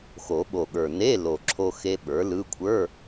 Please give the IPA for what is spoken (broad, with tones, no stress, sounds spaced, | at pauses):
x o˨˩˦ ɓ o˨˩ ɠ ə˞˨˩ n e˧˥˧ l o˨˩ ǁʰ o˧ x e˦˥ ɓ ə˞˩˥ l ɯ˧˥˧ kʷʰ ə˞˧˥˧